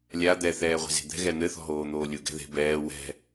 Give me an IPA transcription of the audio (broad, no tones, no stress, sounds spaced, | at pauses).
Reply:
lʲ a d̪ ɛ θ ɛː ʁʷ e̤ z e̤ d̪ ɛ̤ ɣ ɛ n̪ ɘ θ ɔ̤ ɦ oː n̪ oː lʲ u ɡ ɛ̤ ð e̤ b ɛː w ɛ̤